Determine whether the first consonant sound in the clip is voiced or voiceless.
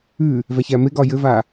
voiced